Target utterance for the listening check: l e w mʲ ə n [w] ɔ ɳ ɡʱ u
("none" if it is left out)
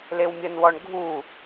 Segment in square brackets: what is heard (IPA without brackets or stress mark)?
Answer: w